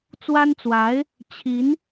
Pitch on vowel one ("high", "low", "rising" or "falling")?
high